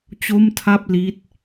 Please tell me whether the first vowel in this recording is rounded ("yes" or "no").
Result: yes